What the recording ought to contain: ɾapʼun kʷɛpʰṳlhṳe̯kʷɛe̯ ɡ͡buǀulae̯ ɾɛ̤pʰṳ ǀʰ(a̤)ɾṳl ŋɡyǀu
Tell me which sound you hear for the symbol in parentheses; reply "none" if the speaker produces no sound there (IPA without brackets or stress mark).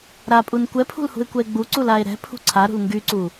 a